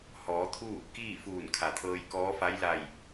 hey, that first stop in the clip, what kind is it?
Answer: aspirated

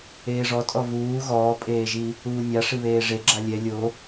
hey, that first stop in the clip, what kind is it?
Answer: ejective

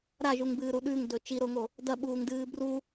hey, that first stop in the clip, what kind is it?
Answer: plain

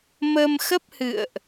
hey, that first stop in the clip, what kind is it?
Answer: plain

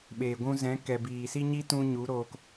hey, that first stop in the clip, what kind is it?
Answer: implosive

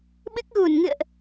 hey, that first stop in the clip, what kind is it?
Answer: implosive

